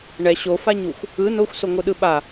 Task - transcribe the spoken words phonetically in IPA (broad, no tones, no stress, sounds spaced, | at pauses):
ɳ ɛ ɕ o f a ɲ u xʷ | ɯ n o xʷ s o ŋʷ ɯ ɗ ɯ ɓ a